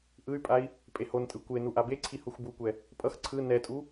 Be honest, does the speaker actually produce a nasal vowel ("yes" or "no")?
no